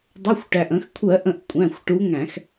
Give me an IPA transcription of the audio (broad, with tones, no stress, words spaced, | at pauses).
dˤʊ˩˧˩xʷʈæ˩ʔ ə̃˧˩˧xkʷʰɜ˧˩˧ʔə̃˧˩˧ʔ kʷʼæ̃˩˧˩xʷʈu˨˦ŋæ̃˧˩˧x